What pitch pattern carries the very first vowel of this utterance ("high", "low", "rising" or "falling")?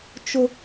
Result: high